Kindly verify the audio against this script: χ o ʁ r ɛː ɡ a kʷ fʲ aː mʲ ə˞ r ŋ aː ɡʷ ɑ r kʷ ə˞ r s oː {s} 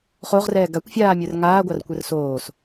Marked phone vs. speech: correct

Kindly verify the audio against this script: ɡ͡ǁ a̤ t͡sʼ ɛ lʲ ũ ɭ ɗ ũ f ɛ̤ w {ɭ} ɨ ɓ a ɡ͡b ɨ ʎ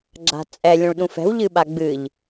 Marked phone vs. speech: incorrect: ʎ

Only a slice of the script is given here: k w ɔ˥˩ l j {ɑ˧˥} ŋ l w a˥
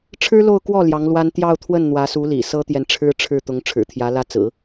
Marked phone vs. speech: correct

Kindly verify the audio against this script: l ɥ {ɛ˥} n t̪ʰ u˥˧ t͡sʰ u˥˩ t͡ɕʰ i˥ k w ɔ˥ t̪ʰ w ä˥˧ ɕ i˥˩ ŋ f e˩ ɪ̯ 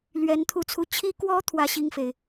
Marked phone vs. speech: incorrect: ɛ˧˥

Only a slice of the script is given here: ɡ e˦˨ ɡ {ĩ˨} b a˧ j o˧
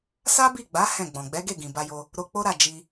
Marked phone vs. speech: correct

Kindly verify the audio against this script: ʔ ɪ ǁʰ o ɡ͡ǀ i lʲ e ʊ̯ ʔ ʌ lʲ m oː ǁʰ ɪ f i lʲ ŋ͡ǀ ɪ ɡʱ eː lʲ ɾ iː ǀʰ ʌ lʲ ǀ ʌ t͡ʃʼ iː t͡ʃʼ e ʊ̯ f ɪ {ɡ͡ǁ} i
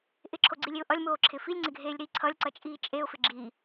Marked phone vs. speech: correct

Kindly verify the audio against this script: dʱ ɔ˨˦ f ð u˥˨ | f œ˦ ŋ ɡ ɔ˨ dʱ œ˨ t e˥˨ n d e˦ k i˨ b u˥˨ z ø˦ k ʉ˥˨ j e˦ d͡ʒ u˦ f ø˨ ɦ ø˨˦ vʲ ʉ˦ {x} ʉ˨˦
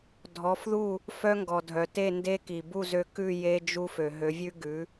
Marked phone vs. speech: incorrect: ɡ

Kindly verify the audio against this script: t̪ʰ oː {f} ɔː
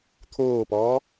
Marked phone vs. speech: incorrect: p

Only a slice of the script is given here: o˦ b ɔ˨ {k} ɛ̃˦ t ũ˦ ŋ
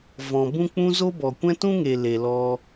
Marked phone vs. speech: incorrect: kʷ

